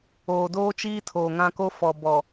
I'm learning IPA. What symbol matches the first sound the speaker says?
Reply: oː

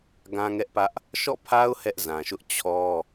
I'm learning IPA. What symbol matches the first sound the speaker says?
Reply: ɡ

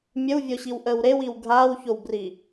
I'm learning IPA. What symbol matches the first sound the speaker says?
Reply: mʲ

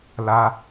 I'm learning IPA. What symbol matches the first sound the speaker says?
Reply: l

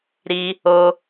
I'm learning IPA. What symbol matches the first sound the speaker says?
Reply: ɾ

